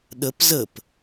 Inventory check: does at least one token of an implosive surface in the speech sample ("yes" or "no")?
yes